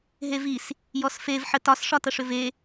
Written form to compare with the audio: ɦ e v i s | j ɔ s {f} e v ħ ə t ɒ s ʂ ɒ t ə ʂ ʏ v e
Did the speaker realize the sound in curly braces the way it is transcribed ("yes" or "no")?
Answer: yes